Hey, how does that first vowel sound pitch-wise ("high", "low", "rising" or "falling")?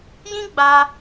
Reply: high